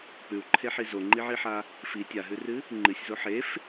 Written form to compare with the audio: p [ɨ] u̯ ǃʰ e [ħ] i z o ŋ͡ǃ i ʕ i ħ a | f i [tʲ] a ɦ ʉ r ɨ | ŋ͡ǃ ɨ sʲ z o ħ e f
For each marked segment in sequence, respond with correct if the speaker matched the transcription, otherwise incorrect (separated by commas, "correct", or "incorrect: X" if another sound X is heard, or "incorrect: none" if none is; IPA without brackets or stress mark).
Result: incorrect: ʉ, correct, correct